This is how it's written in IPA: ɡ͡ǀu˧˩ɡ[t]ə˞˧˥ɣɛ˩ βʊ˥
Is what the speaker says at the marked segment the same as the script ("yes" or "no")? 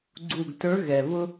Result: yes